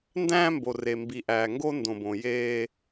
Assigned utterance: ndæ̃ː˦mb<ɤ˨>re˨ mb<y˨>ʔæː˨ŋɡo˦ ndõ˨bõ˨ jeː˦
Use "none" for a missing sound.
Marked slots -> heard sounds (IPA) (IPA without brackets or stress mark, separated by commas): o˨, i˨